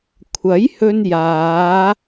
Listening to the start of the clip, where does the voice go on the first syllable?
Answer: rising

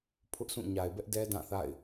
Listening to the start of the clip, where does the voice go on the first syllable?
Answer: high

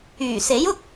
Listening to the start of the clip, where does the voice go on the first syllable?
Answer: low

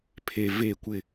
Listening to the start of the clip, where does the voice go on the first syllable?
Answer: low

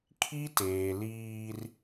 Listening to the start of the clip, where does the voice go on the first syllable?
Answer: high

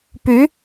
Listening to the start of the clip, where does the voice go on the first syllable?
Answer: rising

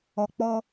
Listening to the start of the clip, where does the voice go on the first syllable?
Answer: low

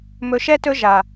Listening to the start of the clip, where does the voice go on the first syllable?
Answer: low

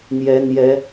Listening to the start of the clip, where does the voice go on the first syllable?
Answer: rising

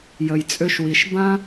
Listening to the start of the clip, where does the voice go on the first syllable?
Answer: low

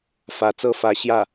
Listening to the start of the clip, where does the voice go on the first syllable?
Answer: rising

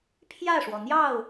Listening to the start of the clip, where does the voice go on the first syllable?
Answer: falling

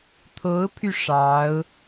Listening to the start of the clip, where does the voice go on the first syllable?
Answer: rising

